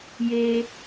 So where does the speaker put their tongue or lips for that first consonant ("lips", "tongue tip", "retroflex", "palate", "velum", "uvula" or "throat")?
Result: palate